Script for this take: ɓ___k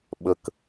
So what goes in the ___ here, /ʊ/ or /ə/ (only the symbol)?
ə